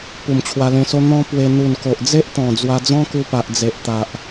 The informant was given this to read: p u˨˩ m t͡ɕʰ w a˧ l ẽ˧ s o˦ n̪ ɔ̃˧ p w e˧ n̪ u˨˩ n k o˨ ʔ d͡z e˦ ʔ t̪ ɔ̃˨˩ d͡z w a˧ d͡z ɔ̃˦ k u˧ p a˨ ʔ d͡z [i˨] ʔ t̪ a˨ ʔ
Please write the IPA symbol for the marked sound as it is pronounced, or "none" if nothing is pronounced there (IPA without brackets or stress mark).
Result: e˨